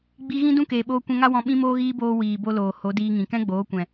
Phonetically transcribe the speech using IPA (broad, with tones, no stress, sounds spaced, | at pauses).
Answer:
ɡ͡b i˧ ɣ ĩ˦ d ũ˦ k eː˨ ɓ oː˧ kʷ ɛ̃˧ ŋ a˦ w ɔ̃˧ ɓ ĩ˦ m oː˦ ɣ iː˦ b oː˧ w iː˨ b o˧ l oː˨ h o˨˦ d iː˧ ŋ ĩ˨ k ɛ̃˦ ɡ͡b oː˨˦ kʷ ɛ̃˨